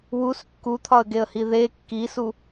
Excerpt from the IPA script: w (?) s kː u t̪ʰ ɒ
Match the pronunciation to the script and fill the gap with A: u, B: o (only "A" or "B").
A